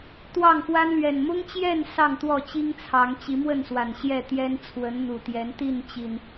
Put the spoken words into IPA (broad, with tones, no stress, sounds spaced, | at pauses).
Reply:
t̪ w ɑ˥˨ ŋ f w a˦ n l ɥ ɛ˨˩ n m ʊ˦ ŋ t͡ɕ j ɛ˥˨ n s ɑ˥˨ ŋ t̪ w ɔ˥˨ t͡ɕ i˦ ŋ t͡sʰ ɑ˨˦ ŋ t͡ɕ i˨˦ m w ə˥˨ n s w a˨˩ n ɕ j ɛ˥˨ t̪ j ɛ˦ n t͡sʰ w ə˨˦ n n̪ u˨˩ t̪ j ɛ˨˦ n t̪ i˥˨ n t͡ɕ i˨˩ n